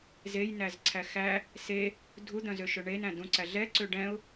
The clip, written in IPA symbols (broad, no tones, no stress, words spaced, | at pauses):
zejnæzǀʰæ xæ | se | dʱud̪œ̃zøʃɵ ɳenæ̃ dũǀæ ɮɛǀø ɖɛ̃ʊ̯